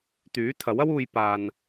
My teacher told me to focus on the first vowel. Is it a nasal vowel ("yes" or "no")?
no